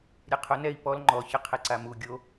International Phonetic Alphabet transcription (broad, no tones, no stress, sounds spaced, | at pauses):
ɾʲ e qʰ ʊ n ɛ i̯ p ɔ l ŋ͡ǃ ɔ ç ɪ qʰ e ǀ a m u ɡʲ o